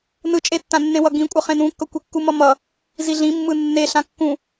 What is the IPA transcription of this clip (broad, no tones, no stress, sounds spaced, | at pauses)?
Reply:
n ɯ t͡ʃʼ e tː ã nː ẽ w ʌ ɡ ĩ kʷʼ ʌ χ ẽ n ũ kː ʌ kʷ e kː u m ʌ m ʌ | z i ɮ ĩ mː ɯ nː e ɬ ã kː ũ